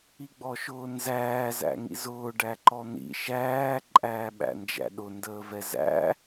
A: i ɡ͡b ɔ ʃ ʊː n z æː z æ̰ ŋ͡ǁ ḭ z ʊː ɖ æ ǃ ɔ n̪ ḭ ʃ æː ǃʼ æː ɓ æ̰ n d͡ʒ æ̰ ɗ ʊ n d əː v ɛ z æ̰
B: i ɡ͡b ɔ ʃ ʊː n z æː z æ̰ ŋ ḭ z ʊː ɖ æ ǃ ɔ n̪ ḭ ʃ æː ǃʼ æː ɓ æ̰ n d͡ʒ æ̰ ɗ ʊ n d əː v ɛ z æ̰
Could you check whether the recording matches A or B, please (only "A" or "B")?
B